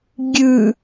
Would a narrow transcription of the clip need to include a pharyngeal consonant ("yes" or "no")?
no